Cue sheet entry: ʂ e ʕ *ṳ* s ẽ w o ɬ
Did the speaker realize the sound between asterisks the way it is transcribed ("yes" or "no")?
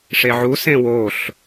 no